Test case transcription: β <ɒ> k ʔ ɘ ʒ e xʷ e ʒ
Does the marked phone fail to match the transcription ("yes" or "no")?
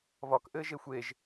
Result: no